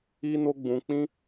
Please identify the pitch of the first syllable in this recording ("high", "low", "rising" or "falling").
high